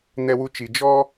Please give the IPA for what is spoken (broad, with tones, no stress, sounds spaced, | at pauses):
n ɛ˧ w u˧ t͡ʃ i˨ d͡ʒ ɔ˦